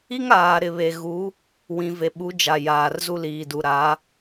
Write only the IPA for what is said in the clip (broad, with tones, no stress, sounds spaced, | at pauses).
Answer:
i˦ ŋ aː˨ ɾ ɪ˨ β e˨ ɣ u˨˦ | w ĩ˨ v e˨ ɓ u˨˦ d͡ʒ a˨ j aː˨ r z u˦ l iː˨ d u˨ ɾ a˨˦